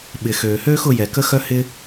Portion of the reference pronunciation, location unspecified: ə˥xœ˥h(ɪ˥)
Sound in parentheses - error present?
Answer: no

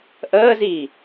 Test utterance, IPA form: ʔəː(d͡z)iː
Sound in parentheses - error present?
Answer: yes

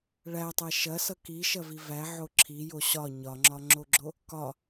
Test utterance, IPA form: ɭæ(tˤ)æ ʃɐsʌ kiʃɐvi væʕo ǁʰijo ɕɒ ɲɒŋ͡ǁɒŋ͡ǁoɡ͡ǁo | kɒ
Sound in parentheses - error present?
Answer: no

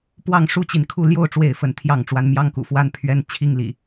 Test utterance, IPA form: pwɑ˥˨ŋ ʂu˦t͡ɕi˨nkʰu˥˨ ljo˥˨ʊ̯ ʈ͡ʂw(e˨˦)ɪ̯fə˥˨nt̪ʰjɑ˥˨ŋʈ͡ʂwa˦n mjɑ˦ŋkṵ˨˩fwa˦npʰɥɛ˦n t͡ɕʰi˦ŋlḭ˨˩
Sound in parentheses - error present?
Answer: yes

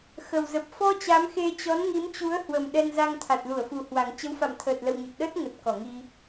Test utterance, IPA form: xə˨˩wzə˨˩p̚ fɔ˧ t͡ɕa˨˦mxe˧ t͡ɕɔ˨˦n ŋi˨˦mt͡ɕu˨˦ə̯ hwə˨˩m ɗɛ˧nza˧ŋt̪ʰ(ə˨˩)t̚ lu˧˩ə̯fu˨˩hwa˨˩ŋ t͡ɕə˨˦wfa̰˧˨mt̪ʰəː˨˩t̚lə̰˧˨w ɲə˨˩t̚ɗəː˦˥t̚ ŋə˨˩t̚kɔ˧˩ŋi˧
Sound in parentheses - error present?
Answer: yes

